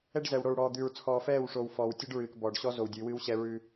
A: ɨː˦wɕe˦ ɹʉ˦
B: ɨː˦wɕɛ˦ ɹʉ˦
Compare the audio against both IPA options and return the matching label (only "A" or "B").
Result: B